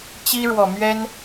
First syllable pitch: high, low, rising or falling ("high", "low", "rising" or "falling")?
high